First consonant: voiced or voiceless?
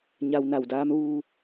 voiced